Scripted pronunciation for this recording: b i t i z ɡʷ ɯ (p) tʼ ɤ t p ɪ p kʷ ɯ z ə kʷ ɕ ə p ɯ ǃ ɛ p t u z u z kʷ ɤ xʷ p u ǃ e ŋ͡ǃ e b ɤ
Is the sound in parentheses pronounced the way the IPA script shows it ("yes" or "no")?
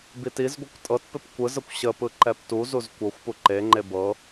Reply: no